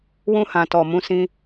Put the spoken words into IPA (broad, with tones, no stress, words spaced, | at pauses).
wũ˧hã˨tɔ˨ mũ˨˦ sĩ˧